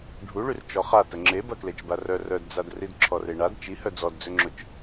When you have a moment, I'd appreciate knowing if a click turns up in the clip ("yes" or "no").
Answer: yes